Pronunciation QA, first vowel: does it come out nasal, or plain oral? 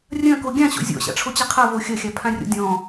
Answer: nasal